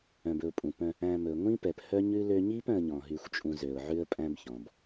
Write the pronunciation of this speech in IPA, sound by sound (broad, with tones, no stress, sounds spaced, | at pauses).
œ̃˨ b ɵ˨ ʊ̯ pʼ ũ˨ p œ̃˧ | æ̃˧ m ɵ˨ ŋʷ ĩ˦ p ɛ˨ p h œ˦ ɲ ʉ˦ l ø˧ ɲ i˦ p œ̃˦ ə̯ ɲ ɔ̃˧ ɦ y˦ xʷ t͡ʃʼ ũ˦ z ø˧ ʊ̯ ʕ ʉ˦ ə̯ pʼ æ̃˦ b ç ɔ̃˨ b